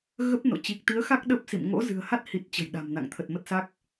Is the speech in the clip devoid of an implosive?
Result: no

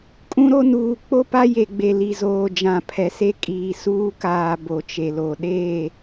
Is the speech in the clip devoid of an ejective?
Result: no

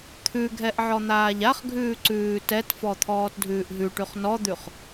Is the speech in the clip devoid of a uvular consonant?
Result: no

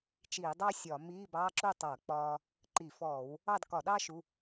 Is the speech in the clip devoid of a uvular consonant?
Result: yes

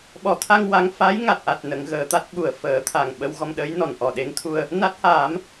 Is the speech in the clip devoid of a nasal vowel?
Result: yes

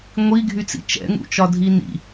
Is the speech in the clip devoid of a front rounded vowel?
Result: no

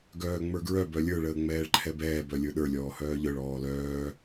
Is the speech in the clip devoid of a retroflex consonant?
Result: no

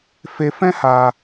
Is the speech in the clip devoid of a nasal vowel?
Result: no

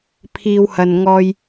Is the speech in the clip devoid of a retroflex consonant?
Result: yes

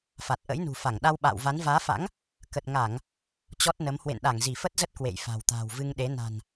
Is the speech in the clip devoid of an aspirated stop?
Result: yes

